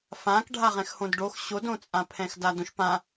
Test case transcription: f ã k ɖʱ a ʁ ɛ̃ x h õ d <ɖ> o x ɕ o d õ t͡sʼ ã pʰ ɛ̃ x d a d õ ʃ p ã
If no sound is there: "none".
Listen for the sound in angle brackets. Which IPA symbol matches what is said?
ɖ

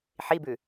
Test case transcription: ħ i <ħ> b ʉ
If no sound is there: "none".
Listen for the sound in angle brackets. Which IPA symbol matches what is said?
none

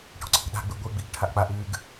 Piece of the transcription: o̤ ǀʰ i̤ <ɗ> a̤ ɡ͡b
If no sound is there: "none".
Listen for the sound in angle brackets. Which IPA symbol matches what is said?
ɗ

